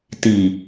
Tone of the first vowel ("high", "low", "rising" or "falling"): low